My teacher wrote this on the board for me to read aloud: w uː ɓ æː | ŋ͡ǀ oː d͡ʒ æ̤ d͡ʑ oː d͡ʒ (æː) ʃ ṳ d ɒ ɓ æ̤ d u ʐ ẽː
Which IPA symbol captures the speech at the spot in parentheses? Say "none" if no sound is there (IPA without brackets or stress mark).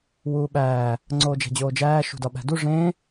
æː